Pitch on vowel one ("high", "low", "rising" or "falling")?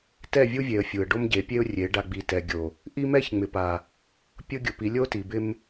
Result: falling